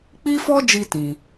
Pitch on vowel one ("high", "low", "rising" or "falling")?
high